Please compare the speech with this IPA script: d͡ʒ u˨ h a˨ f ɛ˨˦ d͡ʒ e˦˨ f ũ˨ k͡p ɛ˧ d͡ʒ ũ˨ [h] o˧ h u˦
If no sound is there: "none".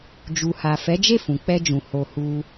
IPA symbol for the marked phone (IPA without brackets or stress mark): h